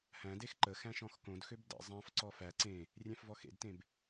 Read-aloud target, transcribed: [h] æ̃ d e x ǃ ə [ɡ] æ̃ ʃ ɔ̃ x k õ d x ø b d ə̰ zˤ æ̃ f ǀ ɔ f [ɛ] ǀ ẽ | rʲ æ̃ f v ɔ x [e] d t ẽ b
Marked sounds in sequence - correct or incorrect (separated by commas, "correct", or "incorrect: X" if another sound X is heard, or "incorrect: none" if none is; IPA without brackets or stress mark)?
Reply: correct, incorrect: x, incorrect: æ, incorrect: ḛ